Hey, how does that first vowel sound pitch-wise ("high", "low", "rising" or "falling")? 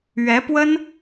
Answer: rising